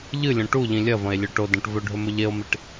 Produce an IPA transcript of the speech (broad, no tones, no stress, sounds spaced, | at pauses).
ʎ ɨ lʲ õ ʈ u ʎ ĩ lʲ ɐ v ɐ̃ e̯ lʲ ɵ ʈ o d ɐ̃ ʈ v ɵ ɖʱ ɵ m ɵ ʎ e o̯ m i ʈ